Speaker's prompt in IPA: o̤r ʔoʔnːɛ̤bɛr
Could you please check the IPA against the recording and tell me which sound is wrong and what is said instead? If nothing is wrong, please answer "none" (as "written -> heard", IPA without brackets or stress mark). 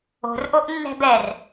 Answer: none